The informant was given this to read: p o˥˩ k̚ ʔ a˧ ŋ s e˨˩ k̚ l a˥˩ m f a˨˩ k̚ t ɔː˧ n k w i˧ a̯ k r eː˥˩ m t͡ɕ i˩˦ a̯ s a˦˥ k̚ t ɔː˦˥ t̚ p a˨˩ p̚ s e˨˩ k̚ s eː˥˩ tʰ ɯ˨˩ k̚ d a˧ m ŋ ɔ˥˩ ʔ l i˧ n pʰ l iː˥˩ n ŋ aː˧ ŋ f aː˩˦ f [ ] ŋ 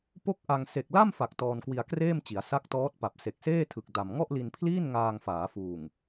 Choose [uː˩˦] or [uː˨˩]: uː˨˩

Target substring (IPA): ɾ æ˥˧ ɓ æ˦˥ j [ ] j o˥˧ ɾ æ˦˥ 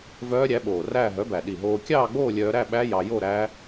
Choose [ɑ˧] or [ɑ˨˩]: ɑ˧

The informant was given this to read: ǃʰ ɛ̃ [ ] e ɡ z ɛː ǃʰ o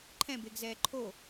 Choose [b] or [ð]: b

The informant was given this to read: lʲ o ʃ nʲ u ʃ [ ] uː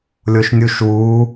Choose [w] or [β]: w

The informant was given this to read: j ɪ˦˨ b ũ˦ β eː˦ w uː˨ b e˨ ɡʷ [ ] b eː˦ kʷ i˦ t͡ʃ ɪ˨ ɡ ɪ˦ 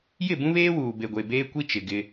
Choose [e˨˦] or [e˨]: e˨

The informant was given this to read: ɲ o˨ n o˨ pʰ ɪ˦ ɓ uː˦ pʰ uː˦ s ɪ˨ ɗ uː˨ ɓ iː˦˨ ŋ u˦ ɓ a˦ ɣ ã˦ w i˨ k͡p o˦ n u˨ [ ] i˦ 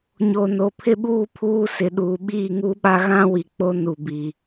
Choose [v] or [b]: b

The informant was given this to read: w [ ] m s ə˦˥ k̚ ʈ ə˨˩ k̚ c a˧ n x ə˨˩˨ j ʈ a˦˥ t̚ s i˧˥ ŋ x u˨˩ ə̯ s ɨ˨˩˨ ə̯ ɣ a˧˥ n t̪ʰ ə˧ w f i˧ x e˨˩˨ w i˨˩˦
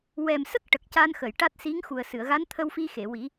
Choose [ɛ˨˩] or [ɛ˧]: ɛ˨˩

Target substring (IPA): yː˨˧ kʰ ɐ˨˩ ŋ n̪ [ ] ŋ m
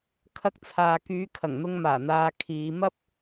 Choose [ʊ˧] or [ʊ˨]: ʊ˧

